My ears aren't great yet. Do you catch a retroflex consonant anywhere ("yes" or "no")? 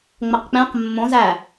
no